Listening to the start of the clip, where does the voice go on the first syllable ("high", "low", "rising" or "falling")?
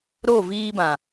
falling